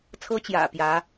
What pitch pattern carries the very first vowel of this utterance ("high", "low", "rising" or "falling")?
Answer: high